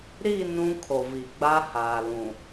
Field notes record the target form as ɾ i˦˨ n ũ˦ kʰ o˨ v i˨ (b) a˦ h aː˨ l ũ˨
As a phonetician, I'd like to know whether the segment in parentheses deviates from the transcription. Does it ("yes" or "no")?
yes